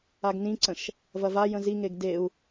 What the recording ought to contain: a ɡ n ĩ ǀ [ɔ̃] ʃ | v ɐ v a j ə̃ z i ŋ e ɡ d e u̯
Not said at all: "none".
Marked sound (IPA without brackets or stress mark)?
ə̃